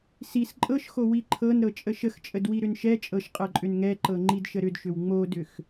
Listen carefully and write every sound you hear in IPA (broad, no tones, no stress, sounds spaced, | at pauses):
s i s ǃʼ ɤ ʃ x o w i ǃʰ ɤ n ɾ ɤ t͡ʃʼ ə ʃ ə x t͡ʃʼ ə d w i ɾ ʏ n ʃ ɛ t͡ʃʼ ɤ ʃ qʼ ɤ ǃʼ ʏ n ŋ ɛ ǃ ɤ ŋ͡ǃ i d ʃ ə ɾ ʏ d ʃ ʏ w ŋ͡m o d ʏ x